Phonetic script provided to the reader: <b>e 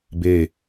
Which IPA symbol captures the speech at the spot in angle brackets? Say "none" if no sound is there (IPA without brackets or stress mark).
b